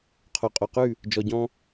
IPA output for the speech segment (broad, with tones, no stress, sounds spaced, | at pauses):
qʰ o˨ qʼ o˨ q ʉ˦˨ | d͡ʒ ɔ˨ ɟ ɔ̃˧